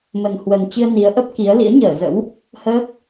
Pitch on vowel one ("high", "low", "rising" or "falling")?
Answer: low